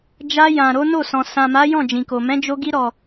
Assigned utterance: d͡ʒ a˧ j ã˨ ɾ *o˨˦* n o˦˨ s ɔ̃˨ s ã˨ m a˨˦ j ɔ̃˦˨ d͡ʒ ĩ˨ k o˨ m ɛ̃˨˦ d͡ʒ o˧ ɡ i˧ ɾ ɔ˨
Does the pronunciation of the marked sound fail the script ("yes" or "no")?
no